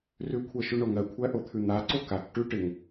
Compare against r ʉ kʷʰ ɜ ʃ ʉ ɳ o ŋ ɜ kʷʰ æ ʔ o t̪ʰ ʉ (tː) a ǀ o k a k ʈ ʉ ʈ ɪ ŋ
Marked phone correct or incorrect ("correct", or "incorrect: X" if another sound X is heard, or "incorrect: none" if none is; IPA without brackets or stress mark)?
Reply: incorrect: n̪